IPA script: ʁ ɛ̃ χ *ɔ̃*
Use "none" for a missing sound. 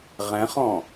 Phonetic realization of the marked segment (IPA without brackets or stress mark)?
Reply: ɔ̃